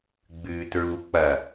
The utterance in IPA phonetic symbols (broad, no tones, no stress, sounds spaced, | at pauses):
ɡ͡b ʉː t ɹ u k͡p ɐ